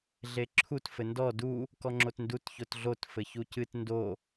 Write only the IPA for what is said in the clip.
ɮeǁʰut fɘndɔ du | kɔŋ͡ǁotndut çotɮot fɘçucɨt ndo

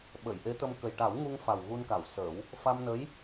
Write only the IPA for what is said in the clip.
ɓə˨˩˨jʔe˧˥t̪ə˧m kə˨˩jʈa˨˩˦wŋu˧ŋfa˨˩w ɣu˧nka˨˩˨w səː˨˩˦w | fa˧mnə˧˥j

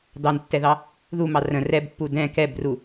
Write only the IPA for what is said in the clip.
dɑntːɛðɑ | ðumɑ rə̃ rɛbpːu dɛ̃ kɛbru

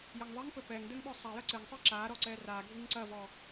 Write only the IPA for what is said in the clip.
jɐŋðˤiŋpɘ pɛŋdɘŋ ɓɔsˤajɐ ǀɘŋsˤɨ ǁa ɾɔǀɛraɡʱiŋ ǀɐvɔ

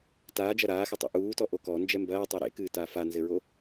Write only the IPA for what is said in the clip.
taːd͡ʒɐ ɾaːxɘtˤo̰ ʔuːtɔʔo kɔnd͡ʒɛ mbɐːtˤɛ ɾḛkɨːtaː fanzɘɹo

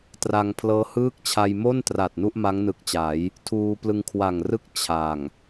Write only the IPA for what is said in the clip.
tra˧ŋpʰlɤː˦˥hɯː˥˩k̚t͡ɕʰa˧j mo˥˩ntra˨˩t̚ nu˥˩ʔma˦˥ŋnɯ˨˩k̚t͡ɕa˩˦j | tʰuː˧plɯ˧ŋkʰwa˨˩ŋrɯ˥˩k̚ t͡ɕʰa˨˩ŋ

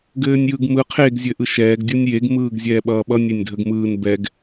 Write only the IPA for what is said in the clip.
ɡɘːnʲjɯɡmɯ qʰeɡ zʲɘʔɯʃɛːɡ dʲʌnʲjeɡ mɯːɡzʲɛːɓʌːɓʌ nʲenʲdʱəɡmɯːn bɛɡ

